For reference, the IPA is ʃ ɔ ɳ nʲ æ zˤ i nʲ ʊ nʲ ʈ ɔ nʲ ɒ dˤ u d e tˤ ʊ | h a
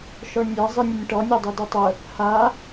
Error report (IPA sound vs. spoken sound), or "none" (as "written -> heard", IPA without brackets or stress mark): none